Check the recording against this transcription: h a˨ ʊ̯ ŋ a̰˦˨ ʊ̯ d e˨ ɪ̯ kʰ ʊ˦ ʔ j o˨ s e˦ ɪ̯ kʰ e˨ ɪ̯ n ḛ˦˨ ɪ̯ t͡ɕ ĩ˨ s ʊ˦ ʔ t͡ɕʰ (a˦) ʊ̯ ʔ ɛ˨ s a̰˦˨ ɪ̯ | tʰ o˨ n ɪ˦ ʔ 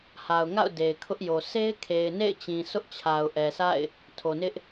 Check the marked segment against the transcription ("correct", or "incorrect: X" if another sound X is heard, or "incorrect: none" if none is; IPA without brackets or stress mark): incorrect: a˨